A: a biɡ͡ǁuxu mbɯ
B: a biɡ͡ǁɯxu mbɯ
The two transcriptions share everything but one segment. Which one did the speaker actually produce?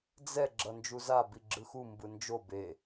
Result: B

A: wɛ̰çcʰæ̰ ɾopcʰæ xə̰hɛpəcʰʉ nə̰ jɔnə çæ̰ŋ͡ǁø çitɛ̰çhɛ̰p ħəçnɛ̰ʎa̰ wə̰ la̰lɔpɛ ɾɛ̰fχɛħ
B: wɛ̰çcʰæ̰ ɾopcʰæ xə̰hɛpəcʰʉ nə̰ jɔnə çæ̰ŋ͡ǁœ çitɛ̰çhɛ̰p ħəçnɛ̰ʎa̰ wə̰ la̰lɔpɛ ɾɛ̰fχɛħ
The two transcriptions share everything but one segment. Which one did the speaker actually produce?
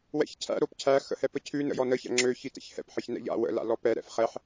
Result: A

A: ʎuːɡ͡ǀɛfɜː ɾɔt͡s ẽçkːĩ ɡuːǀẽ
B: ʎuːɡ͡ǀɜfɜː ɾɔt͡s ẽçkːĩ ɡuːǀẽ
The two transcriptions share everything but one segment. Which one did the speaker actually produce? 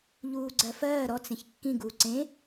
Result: B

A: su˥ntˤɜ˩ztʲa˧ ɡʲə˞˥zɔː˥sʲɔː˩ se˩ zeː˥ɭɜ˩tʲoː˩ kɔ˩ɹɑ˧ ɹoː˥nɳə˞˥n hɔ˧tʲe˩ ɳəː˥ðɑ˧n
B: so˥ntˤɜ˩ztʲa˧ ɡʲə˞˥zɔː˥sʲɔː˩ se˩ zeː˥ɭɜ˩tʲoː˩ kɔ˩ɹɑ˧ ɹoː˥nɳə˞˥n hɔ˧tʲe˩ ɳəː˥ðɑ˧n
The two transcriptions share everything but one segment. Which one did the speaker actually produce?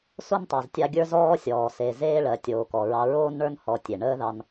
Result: B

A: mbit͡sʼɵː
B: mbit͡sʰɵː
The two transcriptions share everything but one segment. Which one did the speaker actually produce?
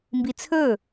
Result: B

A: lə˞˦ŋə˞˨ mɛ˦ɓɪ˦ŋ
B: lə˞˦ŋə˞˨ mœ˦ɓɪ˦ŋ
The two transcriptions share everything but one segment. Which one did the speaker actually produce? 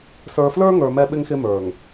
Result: A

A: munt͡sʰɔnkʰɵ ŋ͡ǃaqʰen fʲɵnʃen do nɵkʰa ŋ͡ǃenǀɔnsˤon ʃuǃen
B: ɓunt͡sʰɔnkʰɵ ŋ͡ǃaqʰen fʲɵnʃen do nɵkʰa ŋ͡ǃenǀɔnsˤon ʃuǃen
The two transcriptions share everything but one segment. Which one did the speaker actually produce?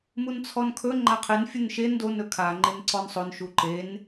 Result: A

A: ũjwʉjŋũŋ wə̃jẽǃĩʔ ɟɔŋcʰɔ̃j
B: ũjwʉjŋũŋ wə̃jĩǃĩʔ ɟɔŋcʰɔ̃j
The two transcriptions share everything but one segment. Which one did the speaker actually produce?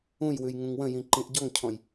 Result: B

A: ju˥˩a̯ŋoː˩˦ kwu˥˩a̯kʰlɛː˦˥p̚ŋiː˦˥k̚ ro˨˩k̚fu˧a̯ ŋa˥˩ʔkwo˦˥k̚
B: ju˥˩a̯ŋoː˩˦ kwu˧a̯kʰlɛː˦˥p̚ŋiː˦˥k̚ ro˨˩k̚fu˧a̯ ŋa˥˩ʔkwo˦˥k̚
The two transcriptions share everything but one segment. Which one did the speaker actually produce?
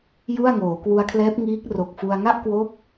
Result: B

